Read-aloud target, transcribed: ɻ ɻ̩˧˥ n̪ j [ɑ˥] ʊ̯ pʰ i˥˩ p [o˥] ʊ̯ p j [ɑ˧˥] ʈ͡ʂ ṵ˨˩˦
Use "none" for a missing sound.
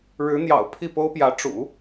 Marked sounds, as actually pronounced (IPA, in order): ɑ̰˨˩, o˥, ä˧˥

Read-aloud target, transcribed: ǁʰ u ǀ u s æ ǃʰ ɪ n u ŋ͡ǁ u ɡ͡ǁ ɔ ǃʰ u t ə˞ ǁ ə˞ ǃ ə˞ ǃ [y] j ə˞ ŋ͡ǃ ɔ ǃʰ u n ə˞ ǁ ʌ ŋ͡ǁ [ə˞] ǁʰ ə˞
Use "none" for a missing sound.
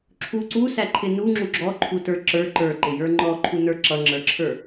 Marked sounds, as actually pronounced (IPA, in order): ɪ, ə˞

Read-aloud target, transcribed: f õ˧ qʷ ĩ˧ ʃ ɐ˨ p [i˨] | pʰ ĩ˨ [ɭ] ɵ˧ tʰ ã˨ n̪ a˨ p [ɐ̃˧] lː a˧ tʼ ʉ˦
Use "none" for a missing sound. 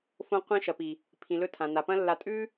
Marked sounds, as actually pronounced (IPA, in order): i˨, l, ɐ̃˧

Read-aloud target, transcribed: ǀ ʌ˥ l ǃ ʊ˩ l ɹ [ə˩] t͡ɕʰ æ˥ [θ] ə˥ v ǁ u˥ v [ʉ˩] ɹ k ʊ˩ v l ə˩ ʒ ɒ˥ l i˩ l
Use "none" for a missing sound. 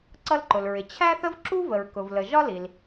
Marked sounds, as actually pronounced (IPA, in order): ɪ˩, θ, ə˩

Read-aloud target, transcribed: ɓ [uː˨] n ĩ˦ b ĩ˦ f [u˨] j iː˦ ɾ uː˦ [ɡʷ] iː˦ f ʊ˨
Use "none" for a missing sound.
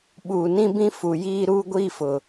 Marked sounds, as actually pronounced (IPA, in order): uː˨, u˨, ɡʷ

